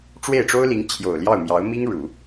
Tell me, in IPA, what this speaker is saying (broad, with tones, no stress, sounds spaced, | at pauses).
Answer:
ʈ͡ʂ w e˥˩ ɪ̯ ʈ͡ʂ o˥ ʊ̯ l i˧˥ ŋ t͡ɕʰ j o˨˩ ʊ̯ l j ɑ˥˩ ʊ̯ m j ɑ˧˥ ʊ̯ m i˥ ŋ ɻ u˨˩˦